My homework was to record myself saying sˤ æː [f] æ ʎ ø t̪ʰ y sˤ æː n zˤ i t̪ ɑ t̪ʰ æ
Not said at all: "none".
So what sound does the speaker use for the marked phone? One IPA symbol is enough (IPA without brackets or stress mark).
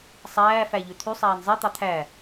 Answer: f